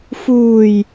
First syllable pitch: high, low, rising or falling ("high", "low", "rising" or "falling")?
low